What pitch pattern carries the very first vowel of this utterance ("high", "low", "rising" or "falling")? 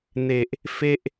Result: low